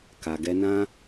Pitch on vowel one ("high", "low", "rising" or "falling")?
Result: low